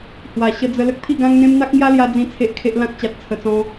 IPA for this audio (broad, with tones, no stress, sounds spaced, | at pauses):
h w a˨˩ ɕ ə˧ d͡z ə˧ l ə˦ k̚ t̪ʰ i˥˧ ɡ ã˦ ŋ n̪ ẽ˦ m n̪ a˦ k̚ ŋ j a˦ l j a˧ d͡z ĩ˦ t͡sʰ e˦ ʔ kʰ e˦ ʔ l ã˦ k̚ t͡ɕ a˨ t̚ t͡sʰ ə˨˩ t͡s ɔ̃˧